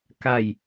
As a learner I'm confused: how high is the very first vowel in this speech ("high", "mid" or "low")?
low